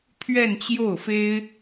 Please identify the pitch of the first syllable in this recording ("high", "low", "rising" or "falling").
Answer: falling